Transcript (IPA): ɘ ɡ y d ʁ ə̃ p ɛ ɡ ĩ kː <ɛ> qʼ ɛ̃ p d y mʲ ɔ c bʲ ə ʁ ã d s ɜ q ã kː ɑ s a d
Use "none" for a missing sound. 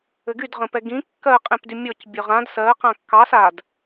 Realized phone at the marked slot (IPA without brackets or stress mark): ɜ